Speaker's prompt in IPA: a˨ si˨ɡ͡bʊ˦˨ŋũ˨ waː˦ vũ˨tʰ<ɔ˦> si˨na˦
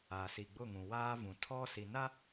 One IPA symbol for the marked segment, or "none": ɔ˦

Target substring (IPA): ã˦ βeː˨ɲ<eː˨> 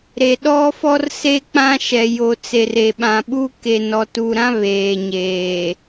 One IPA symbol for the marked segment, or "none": eː˨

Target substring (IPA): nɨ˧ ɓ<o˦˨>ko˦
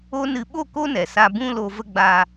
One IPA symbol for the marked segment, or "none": o˦˨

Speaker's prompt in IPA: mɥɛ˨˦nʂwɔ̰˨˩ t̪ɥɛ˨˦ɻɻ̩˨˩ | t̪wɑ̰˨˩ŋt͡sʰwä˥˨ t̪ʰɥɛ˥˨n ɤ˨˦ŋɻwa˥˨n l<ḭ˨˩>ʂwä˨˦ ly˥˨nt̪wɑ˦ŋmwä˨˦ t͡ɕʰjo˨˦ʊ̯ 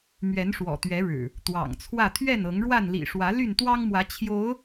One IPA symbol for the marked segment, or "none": ḭ˨˩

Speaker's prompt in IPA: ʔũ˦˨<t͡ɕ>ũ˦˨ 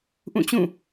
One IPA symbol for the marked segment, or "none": t͡ɕ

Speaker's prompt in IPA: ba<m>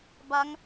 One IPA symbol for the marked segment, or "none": ŋ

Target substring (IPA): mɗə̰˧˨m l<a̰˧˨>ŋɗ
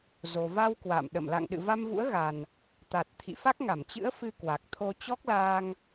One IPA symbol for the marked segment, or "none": a̰˧˨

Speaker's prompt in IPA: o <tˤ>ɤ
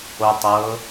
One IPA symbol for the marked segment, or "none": tˤ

